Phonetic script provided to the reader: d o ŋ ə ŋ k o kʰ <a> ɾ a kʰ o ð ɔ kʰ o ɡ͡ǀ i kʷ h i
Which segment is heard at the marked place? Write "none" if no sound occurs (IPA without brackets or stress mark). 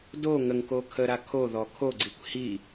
ə